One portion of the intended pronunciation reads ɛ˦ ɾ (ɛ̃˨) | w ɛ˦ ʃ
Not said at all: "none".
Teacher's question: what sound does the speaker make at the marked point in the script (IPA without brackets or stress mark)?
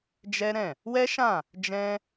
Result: ɛ̃˦˨